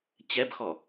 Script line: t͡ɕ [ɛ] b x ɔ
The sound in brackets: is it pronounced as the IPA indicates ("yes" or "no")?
yes